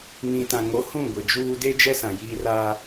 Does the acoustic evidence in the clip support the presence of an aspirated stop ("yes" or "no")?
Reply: no